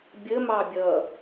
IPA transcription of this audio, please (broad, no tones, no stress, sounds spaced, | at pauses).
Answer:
bʲ ə m ɑ bʲ ʌ